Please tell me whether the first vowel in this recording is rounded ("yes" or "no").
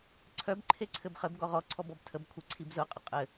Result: yes